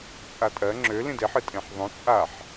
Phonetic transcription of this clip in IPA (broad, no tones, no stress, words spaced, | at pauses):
t͡sʼatʼɜ ŋ͡ǁø lĩdeħ ɨtʼẽħðˤõ t͡sʼaħ